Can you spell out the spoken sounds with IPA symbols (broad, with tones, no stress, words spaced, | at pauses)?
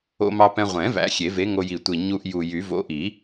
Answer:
o̰˧mɑ˧pɛ̃˧ ʁʷɛ̃˨˩˦ væ̰˨˥xʲe˨˩˦ve˨˥ŋo˧ ji˨˩tʷi˨˩ɲu˧ʔ ju˨˩jy˨˩˦ vo̰˨˥ʔi˨˩˦